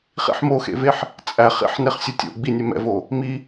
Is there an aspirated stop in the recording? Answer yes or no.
no